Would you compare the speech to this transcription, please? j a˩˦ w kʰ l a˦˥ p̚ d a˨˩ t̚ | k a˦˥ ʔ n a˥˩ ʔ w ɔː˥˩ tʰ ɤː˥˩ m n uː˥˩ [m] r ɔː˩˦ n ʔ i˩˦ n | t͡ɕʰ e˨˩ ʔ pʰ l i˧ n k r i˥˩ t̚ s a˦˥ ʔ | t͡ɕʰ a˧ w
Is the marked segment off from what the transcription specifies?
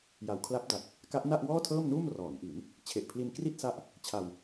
no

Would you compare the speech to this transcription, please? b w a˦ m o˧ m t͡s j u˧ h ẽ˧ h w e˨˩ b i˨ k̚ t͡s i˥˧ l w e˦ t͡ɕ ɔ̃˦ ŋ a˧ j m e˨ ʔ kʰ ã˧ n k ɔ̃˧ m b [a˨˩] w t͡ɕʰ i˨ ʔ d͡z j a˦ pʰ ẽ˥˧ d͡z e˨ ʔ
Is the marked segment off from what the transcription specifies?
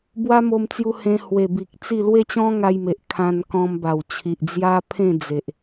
no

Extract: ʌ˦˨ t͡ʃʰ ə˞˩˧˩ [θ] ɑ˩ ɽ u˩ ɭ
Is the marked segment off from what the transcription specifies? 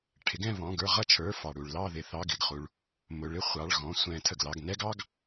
yes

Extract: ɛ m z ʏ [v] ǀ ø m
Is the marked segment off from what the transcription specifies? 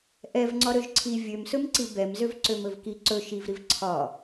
no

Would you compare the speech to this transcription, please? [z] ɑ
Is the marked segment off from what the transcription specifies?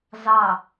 no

